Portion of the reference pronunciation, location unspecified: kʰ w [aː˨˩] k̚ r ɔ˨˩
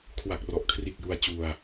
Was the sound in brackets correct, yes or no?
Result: no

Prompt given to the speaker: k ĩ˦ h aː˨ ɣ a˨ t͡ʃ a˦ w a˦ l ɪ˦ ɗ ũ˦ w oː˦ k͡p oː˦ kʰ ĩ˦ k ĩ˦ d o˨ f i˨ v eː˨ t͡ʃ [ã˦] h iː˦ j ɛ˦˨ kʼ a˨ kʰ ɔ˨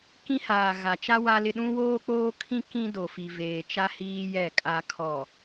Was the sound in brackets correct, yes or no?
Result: no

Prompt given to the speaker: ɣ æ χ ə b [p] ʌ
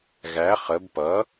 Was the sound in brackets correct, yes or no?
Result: yes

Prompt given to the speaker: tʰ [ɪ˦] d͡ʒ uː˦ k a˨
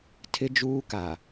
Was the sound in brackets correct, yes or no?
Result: yes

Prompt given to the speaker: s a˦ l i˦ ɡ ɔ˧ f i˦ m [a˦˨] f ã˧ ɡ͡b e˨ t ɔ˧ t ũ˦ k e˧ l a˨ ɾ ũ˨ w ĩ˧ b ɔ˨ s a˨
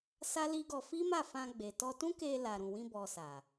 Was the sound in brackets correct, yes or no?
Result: yes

